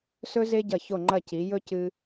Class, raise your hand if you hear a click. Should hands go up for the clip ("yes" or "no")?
yes